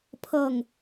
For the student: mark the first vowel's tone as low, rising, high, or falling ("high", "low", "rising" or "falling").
falling